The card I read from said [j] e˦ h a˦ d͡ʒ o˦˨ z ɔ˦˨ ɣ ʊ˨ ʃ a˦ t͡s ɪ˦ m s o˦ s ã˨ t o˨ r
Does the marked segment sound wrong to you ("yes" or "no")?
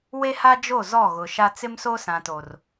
yes